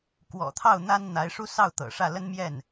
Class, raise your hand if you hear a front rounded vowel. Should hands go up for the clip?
no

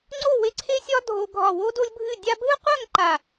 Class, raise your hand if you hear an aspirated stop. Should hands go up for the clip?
yes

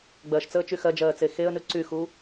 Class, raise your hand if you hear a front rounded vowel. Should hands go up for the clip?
yes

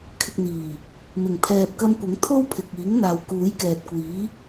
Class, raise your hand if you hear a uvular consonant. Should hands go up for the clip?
no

